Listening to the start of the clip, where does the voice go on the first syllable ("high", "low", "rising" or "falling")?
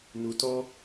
low